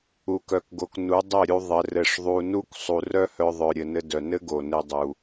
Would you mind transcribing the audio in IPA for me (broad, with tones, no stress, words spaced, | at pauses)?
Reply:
u˨kœ˨kɡo˨k nu˨˦dˤɘ˦˨ɾʲu˧ ðˤɘ˨ rɘ˧ʂðˤu˧ nu˦k sˤu˨rœ˦hœ˧ ðˤœ˨ ɾʲɘ˨nɘ˧ dœ˨nɘ˦ ɡo˨nɘ˧dˤu˨